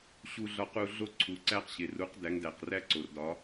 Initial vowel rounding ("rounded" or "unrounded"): rounded